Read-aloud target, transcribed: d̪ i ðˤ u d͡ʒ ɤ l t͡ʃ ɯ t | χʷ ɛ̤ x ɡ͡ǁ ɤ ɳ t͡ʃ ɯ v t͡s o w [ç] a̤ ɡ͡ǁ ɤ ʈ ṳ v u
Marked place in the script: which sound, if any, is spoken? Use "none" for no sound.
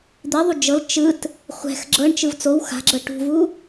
x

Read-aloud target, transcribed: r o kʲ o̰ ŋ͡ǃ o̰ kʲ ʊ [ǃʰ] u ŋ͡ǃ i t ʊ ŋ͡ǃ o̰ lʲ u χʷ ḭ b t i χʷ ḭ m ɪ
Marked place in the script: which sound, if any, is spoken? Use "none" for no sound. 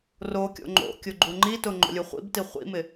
ɡ͡ǃ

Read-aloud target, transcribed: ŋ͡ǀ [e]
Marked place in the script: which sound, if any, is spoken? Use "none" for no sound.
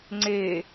e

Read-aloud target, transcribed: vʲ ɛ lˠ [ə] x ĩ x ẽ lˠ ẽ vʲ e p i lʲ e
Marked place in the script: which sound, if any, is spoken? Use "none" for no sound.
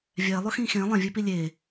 ʊ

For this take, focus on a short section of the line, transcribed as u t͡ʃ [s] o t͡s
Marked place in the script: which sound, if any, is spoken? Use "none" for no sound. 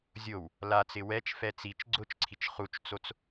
t͡s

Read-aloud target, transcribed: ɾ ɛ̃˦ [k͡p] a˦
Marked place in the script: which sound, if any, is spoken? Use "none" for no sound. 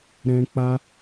k͡p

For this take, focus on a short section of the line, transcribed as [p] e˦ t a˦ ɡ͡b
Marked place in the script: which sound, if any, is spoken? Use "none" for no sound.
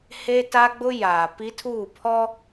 h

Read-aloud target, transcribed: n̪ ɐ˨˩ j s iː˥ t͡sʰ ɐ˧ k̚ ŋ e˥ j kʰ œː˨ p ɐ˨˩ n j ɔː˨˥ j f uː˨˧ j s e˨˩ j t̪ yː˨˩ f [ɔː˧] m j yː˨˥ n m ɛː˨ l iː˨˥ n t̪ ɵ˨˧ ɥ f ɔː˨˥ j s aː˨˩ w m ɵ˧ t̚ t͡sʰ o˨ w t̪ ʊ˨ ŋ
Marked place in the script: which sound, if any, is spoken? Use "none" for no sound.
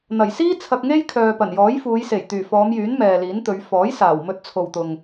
ɔː˨˧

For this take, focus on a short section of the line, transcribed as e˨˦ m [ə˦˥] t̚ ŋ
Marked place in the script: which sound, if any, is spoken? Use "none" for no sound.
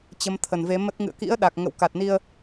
ə˦˥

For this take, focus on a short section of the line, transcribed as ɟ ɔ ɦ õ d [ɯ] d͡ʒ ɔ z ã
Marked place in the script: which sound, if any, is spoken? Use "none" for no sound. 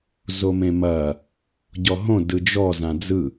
ɯ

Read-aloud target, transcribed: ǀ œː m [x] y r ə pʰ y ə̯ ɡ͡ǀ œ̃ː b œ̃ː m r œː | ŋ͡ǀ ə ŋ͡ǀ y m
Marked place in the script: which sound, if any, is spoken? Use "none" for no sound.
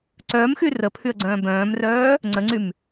x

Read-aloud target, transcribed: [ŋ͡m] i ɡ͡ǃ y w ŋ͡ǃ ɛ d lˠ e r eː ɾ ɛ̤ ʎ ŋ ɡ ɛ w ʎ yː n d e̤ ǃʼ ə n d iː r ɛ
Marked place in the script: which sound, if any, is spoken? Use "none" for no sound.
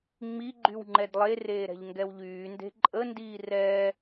ŋ͡m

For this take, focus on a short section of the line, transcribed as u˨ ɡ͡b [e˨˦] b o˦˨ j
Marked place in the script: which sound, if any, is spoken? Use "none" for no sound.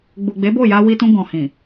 e˨˦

